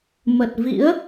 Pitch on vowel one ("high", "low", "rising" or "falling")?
low